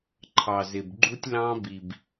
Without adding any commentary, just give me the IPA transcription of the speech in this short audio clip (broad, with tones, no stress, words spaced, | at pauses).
ǃʰɑ˨zɪ˨bɡ͡ǃu˦tʲlɑ̃˦ bi˨b